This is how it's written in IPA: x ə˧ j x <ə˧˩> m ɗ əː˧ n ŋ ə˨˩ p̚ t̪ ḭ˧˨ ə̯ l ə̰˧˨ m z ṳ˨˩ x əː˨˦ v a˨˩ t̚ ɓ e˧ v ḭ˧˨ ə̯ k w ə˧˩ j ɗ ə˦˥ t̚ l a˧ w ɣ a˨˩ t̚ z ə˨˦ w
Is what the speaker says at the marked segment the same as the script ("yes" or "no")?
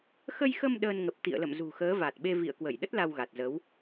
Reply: no